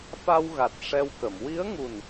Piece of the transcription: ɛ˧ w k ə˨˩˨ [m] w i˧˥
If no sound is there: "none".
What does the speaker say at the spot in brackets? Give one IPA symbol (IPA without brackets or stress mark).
m